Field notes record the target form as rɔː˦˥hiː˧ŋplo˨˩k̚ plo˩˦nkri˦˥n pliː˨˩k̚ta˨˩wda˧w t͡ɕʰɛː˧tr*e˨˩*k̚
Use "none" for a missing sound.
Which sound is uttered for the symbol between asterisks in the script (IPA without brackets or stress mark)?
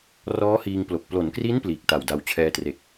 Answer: e˨˩